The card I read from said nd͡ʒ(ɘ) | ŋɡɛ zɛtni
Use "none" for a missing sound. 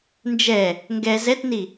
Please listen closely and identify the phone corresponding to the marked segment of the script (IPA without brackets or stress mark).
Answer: ɛ